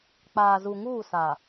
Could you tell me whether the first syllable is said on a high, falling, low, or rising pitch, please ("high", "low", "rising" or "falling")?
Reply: low